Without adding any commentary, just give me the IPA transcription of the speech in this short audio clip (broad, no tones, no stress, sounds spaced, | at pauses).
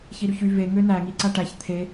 ç i ɾ y ç y v e ŋ ø n æ ŋ i ǀ æ ʈ æ ç t̪ʰ e